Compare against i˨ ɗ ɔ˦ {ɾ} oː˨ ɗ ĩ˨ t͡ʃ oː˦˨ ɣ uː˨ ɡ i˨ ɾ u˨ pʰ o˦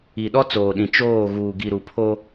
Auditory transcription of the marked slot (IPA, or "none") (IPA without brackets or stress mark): t͡s